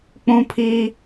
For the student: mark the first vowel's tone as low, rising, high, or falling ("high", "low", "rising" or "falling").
high